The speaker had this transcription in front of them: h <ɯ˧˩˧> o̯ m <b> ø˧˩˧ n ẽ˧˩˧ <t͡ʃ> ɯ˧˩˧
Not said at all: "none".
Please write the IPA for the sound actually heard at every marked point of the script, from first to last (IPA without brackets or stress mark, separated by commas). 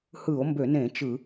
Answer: ɯ˧˩˧, b, t͡ʃ